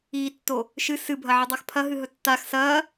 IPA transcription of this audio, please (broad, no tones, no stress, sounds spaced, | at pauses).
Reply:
iː tː o | ʃ ɨ s ɨ bʱ ɐ ʕ ɨ dˤ a x pʰ ɐ ɦ ɨ ɦ ɵ tː a x s ɐː